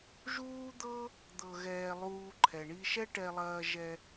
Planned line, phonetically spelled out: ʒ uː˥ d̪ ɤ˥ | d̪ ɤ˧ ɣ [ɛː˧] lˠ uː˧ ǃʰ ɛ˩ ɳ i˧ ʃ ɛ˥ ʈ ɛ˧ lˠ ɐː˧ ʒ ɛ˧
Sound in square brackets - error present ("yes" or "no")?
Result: no